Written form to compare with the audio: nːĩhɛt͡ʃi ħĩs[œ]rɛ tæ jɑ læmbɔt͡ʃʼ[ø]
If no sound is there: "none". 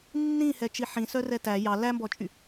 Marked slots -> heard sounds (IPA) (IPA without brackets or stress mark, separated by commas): œ, y